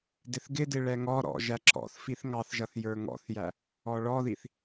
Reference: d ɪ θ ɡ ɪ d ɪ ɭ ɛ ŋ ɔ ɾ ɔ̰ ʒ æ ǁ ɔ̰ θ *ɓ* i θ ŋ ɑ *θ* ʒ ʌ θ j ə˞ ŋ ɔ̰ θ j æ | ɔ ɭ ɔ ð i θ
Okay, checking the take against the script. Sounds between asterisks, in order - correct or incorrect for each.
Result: incorrect, correct

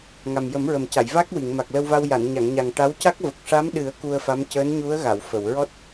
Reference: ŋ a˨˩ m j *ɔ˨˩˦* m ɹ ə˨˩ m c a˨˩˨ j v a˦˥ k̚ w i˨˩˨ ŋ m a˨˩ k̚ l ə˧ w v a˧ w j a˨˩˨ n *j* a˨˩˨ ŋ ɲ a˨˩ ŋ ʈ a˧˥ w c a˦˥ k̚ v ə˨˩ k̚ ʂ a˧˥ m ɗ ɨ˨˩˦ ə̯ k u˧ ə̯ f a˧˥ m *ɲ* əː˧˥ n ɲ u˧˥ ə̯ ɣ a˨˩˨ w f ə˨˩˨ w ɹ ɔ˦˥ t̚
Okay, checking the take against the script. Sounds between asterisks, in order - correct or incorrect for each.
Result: incorrect, incorrect, incorrect

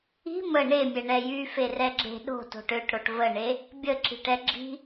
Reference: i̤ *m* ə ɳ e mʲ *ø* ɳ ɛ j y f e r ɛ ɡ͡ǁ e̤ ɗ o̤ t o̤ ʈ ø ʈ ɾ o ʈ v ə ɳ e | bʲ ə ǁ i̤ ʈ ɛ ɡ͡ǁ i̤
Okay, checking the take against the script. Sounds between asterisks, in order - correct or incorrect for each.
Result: correct, incorrect

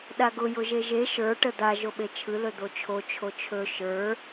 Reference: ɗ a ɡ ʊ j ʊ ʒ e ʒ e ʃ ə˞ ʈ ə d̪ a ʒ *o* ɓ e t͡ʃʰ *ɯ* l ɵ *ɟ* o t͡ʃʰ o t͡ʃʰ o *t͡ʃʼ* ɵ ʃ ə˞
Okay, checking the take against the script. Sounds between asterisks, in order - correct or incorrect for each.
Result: correct, correct, incorrect, incorrect

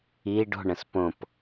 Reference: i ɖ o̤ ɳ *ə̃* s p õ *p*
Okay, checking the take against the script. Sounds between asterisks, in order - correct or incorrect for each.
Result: correct, correct

